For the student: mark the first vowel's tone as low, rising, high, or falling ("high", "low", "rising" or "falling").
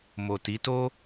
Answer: low